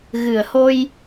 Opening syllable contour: low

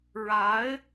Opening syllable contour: rising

